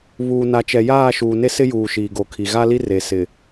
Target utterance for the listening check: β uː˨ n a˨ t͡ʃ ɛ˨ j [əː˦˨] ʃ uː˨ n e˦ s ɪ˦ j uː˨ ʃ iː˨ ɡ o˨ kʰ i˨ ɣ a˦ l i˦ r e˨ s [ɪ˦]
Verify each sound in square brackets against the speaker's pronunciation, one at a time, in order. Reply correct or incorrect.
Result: incorrect: aː˦˨, incorrect: ɪ˨

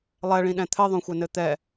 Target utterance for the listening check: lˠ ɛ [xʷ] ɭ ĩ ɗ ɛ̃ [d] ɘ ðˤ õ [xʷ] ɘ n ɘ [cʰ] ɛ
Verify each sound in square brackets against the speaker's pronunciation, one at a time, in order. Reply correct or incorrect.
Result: incorrect: none, incorrect: t̪ʰ, correct, incorrect: t̪

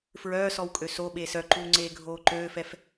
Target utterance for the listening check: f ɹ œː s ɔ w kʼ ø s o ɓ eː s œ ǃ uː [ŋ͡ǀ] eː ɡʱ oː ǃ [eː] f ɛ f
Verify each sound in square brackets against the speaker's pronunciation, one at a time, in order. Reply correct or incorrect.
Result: correct, incorrect: øː

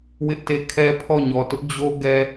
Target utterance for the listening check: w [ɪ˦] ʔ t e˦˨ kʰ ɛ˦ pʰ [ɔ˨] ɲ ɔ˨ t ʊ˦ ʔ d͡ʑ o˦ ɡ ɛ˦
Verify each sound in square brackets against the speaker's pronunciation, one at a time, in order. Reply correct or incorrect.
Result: correct, incorrect: ɔ˦˨

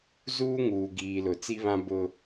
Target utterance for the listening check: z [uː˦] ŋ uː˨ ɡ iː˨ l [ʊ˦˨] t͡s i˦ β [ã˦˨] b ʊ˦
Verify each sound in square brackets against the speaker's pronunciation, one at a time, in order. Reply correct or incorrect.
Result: correct, incorrect: ʊ˨, incorrect: ã˦

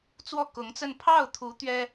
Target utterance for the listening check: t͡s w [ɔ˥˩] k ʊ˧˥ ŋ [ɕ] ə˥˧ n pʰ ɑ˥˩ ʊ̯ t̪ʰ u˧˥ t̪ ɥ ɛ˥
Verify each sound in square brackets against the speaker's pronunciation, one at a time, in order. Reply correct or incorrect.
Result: correct, incorrect: t͡s

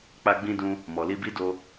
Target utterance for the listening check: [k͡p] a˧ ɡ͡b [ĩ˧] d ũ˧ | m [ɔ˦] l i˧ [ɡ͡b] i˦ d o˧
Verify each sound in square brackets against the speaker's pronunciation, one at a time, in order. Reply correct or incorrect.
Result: correct, correct, incorrect: ɔ˨, incorrect: b

